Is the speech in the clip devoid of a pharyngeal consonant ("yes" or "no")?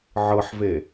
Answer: no